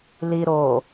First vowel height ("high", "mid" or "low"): high